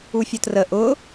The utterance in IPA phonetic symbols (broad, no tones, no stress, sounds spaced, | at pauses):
u fʲ ʊ t r ə ʔ ʊ